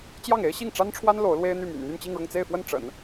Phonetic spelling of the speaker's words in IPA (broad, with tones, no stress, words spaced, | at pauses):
t͡ɕjɑ˥˩ŋe˥ɪ̯ ɕi˥˩ŋʈ͡ʂa˥nʈ͡ʂʰwa˥n lo˧˥ʊ̯lwe˥ɪ̯n̪y˥˩my̰˨˩n n̪y˥˧nt͡ɕi˥˧ŋɻʊ˥˧ŋ t͡se˥˧ɪ̯fwə˥˩n ʈ͡ʂə̰˨˩˦n